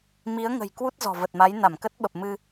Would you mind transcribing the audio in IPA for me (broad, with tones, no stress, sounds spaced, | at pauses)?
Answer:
m i˨˦ ə̯ ŋ ə̤˨˩ j k w u˦˥ t̚ z ɔ̤˨˩ v ə˨˩ t̚ m a˨˦ j n a˧˩ m k ə˦˥ t̚ ɓ ə˨˩ p̚ m ɨ˧